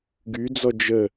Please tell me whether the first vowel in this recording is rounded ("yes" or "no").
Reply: yes